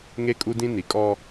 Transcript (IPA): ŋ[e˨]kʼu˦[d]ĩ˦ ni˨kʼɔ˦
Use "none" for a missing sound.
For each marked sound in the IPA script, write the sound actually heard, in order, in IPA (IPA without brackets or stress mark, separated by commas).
e˦, d